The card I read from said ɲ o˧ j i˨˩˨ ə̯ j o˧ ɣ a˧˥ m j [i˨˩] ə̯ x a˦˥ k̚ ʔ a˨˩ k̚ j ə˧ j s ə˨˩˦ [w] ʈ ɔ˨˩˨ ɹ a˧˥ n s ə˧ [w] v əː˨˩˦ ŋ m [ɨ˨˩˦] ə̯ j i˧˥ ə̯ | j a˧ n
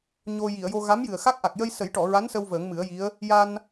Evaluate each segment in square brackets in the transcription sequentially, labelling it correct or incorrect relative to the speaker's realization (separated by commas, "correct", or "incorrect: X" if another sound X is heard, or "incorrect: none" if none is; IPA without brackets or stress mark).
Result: incorrect: ɨ˨˩, incorrect: j, correct, correct